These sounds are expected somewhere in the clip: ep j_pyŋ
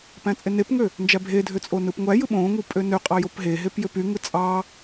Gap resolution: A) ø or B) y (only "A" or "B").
A